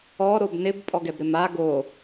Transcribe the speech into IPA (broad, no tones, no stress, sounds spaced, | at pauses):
ɔ ɾ o b n ɪ b pʼ ɔ ɡ ɛ b ɾ ɪ m a ɡ o